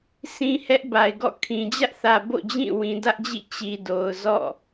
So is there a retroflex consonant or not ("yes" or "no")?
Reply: no